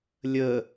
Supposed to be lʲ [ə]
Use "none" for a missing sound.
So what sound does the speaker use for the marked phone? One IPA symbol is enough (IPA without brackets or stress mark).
ə